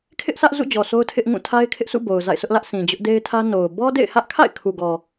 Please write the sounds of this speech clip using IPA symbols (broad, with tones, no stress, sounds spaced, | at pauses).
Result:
kʰ ɪ˦ ʔ s ä˦ ʔ z ṵ˦˨ d͡ʑ ɔ˨ s o˦ ʊ̯ tʰ ɪ˦ ʔ ŋ ũ˦˨ tʰ a˦ ɪ̯ kʰ ɪ˦ ʔ s ṵ˦˨ b o˨ ʊ̯ z a̰˦˨ ɪ̯ s ʊ˦ ʔ l ä˦ ʔ sʰ ĩ˨ d͡ʑ ʊ˦ ʔ d e˦ ɪ̯ tʰ ä˦ n o˨ ʊ̯ b ɔ˦ d ḛ˦˨ ɪ̯ h ä˦ ʔ kʰ a̰˦˨ ɪ̯ kʰ u˨ ɡ ɔ˨